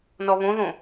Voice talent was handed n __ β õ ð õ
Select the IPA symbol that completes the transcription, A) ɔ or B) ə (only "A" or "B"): A